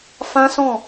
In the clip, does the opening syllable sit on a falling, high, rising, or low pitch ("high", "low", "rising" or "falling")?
high